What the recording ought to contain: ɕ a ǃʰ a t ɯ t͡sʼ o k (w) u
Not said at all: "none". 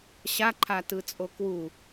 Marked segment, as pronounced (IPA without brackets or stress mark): w